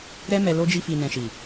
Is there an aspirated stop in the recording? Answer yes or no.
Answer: no